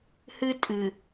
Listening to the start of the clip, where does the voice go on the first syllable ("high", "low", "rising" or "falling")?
high